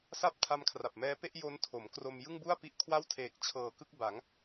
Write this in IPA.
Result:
s a˦˥ p̚ tʰ a˦˥ m kʰ r a˨˩ p̚ m ɛː˦˥ p e˥˩ ʔ j o˦˥ n tʰ o˩˦ m k r o˧ m j ɯ˥˩ ŋ b u˥˩ a̯ p i˦˥ ʔ kʰ w a˥˩ w tʰ eː˨˩ k̚ t͡ɕʰ ɤː˨˩ k ɯ˥˩ k̚ b a˩˦ ŋ

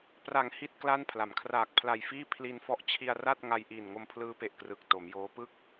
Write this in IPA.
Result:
p r a˩˦ ŋ h i˥˩ t̚ k l a˥˩ n pʰ l a˩˦ m kʰ r aː˨˩ k̚ pʰ l a˨˩ j f iː˥˩ pʰ l i˧ n f ɔ˦˥ ʔ t͡ɕʰ i˧ a̯ r a˥˩ t̚ ŋ a˧ j ʔ iː˨˩ n ŋ o˧ m pʰ l ɯː˦˥ p e˨˩ ʔ k r ɯ˨˩ k̚ t o˩˦ m j oː˦˥ p ɯ˦˥ k̚

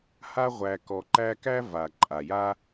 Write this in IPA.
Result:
h a˦ ʁʷ æ˨ k ɔ˨ ǃ æ˦ k æ˥ v a˩ ǃʼ a˩ j a˦

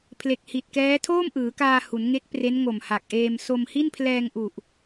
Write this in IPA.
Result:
pʰ l e˨˩ k̚ h i˨˩ t̚ k ɛː˦˥ tʰ oː˥˩ m ʔ ɯː˩˦ k aː˧ h u˩˦ n ŋ e˦˥ k̚ p r e˦˥ n ŋ o˨˩ m h a˨˩ k̚ ʔ eː˧ m s o˧ m h i˥˩ n pʰ l ɛː˧ ŋ ʔ u˨˩ ʔ

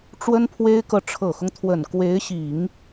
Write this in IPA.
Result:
ʈ͡ʂ w ə˥ n pʰ w e˥ ɪ̯ k ɤ˨ ʈ͡ʂʰ ɤ˨˩ x ʊ˦ ŋ t̪ʰ w ə˨˩ n k w e˧˥ ɪ̯ ɕ i˨˩˦ ŋ

